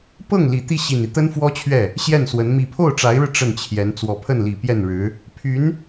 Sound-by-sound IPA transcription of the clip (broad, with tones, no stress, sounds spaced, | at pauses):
p ɤ˥˩ ŋ l i˨˩ t̪ i˥˩ ɕ i˨˩ n i˦ t̪ ə˥ n f w ɔ˥ t͡ɕʰ ɥ ɛ˥˩ | ɕ j ɛ˥˩ n s w ə˧˥ n m i˨˩ pʰ o˥˩ ʊ̯ ʈ͡ʂ a˧˥ ɪ̯ ɻ ɻ̩˧ ʈ͡ʂ ə˥˩ n t͡ɕʰ j ɛ˧˥ n t͡s w ɔ˨˩ pʰ ə˥˩ n l i˨˩ p j ɛ˥˩ n ɻ ɻ̩˧˥ | pʰ y˧˥ n